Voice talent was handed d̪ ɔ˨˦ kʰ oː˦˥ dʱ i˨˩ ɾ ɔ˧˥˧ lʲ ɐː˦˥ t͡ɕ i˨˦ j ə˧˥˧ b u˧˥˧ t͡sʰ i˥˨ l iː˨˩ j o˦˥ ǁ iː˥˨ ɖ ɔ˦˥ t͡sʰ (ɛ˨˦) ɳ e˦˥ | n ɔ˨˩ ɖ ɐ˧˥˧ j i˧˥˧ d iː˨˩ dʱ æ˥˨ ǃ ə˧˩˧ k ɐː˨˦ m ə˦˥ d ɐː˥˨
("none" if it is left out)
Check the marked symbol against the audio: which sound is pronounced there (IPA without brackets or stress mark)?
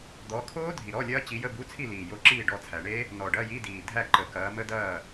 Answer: æ˨˦